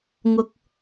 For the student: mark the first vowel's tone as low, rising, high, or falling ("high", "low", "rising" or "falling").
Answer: high